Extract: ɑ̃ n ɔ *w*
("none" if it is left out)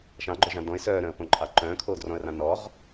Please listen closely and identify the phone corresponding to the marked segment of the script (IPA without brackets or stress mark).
ʁ